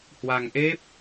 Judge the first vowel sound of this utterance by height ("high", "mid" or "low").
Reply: low